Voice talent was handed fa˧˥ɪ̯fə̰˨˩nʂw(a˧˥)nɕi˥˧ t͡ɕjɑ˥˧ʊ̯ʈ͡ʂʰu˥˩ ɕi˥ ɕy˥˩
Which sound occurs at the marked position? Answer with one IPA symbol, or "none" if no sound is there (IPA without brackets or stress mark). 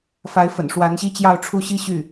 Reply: a˧˥